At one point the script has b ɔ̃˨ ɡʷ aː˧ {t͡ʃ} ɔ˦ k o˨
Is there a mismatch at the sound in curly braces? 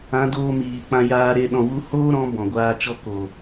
no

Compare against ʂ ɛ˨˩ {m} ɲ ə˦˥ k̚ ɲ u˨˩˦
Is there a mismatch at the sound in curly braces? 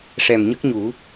no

